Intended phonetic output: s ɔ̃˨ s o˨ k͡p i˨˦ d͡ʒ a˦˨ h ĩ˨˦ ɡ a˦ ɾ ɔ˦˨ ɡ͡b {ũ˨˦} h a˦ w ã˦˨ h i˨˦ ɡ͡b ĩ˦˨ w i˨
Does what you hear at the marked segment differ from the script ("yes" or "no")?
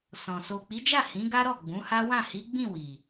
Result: no